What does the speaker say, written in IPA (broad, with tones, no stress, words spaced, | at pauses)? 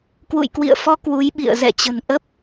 kwṵ˧˨jkwḭ˧˨ə̯fɔ˧ kwu˨˦jɓḭ˧˨ə̯ zɛ̰˧˨t͡ɕə̤˨˩nʔə˦˥p̚